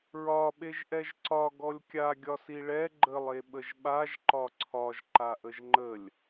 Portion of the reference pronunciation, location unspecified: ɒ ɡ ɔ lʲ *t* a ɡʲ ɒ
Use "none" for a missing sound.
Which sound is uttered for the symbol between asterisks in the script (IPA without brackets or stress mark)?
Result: kʲ